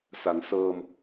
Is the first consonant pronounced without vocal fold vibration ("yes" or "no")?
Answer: yes